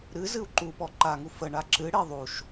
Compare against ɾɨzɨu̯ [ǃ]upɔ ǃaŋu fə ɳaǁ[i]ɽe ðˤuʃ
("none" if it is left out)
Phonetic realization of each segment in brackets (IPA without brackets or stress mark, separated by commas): ǃ, ɨ